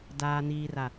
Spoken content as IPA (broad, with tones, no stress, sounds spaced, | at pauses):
d aː˨ n iː˨ r a˨